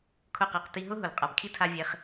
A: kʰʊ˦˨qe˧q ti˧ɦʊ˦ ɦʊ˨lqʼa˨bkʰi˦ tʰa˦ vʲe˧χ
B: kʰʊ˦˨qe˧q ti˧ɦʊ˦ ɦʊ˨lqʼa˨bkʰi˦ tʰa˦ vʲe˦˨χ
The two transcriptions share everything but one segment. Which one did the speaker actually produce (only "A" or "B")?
A